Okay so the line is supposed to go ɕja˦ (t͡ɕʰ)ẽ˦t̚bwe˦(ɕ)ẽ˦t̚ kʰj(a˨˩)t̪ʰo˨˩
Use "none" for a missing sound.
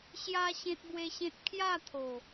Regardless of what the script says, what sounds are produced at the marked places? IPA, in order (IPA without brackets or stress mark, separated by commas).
ɕ, ɕ, a˥˧